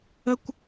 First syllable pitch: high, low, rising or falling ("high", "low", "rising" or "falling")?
high